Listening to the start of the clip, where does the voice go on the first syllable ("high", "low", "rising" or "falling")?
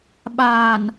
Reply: low